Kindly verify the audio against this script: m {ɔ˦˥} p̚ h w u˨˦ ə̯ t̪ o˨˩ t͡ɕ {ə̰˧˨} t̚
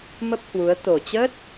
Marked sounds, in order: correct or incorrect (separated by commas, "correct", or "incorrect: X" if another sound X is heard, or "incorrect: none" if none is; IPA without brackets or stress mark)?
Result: incorrect: ə˦˥, incorrect: ə˦˥